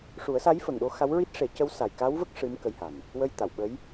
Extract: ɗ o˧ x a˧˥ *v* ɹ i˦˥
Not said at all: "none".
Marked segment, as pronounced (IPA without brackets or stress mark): w